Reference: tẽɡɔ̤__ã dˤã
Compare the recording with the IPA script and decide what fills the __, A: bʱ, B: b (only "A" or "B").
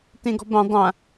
B